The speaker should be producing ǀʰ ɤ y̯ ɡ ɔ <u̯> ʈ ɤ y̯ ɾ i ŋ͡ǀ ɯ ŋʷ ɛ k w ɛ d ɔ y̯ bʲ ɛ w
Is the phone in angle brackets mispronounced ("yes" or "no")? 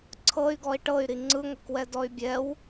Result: yes